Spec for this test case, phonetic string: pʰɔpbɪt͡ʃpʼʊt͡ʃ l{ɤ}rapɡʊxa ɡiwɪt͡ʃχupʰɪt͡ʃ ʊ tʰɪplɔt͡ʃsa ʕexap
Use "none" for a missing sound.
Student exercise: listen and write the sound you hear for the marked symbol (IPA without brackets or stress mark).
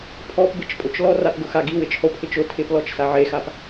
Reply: ɔ